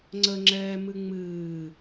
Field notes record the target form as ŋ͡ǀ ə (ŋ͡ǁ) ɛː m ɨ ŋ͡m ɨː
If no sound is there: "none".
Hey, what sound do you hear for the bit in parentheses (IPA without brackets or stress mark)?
ŋ͡ǁ